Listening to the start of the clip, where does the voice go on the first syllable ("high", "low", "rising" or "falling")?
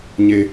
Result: low